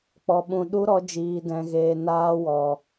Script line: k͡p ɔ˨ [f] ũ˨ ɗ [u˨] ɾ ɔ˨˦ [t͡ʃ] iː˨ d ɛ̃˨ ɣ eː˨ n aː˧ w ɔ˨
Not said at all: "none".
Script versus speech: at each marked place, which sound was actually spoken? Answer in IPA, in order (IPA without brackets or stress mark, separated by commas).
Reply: ɓ, u˦, d͡ʒ